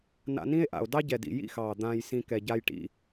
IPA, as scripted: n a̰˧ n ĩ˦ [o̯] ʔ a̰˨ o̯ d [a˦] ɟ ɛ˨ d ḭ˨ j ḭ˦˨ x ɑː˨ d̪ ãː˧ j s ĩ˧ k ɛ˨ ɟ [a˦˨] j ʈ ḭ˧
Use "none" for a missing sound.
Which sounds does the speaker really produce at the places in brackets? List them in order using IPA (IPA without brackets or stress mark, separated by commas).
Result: e̯, ɑ˦, a˧